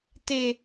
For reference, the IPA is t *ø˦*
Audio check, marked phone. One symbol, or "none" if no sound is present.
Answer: e˦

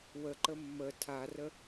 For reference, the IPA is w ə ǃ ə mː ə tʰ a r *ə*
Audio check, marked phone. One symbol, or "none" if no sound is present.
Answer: ə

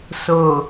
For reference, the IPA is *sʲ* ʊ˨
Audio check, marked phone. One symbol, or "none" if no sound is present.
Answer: s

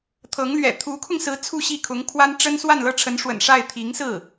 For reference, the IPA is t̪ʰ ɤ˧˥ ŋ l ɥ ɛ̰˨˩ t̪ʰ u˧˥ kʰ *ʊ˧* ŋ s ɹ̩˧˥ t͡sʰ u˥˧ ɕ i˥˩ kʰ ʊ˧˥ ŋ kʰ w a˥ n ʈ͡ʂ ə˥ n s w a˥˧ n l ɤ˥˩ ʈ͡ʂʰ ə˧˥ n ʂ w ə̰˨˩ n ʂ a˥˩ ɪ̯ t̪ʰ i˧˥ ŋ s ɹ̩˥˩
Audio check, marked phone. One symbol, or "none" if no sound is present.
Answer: ʊ˧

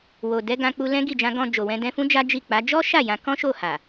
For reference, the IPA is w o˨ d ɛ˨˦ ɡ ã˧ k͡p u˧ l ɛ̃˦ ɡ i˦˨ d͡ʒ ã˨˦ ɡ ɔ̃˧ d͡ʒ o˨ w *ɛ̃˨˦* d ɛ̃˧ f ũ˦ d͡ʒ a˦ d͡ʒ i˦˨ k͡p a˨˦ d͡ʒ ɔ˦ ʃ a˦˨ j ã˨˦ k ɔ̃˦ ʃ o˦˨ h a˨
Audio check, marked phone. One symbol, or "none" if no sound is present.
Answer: ɛ̃˨˦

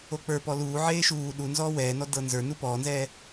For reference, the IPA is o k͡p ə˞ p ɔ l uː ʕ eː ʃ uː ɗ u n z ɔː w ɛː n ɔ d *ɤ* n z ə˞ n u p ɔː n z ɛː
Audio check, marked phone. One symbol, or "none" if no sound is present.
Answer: ɤ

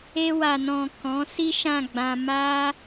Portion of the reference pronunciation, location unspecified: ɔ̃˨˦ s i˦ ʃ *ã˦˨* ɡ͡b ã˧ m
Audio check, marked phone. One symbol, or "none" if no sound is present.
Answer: ã˦˨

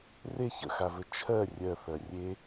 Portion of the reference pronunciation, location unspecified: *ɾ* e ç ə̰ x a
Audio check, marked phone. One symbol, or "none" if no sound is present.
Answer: r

